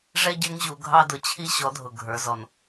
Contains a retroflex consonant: yes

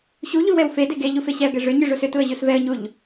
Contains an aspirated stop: no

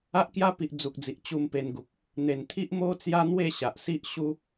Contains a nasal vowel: no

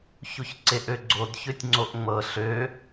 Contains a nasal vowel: no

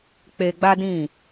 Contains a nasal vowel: yes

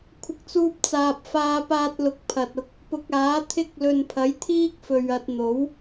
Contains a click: no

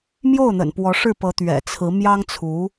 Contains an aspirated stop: yes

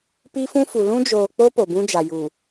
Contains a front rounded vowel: no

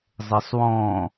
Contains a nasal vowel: yes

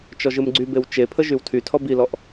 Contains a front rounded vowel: yes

